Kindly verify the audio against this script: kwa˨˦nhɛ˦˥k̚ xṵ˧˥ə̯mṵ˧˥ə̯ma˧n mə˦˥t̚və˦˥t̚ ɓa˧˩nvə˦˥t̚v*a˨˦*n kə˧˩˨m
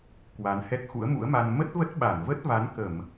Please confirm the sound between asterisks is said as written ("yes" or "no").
yes